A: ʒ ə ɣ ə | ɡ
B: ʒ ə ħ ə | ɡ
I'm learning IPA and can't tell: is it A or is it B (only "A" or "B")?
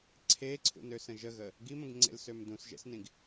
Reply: A